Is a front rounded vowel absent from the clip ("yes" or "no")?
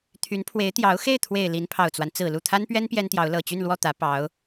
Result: no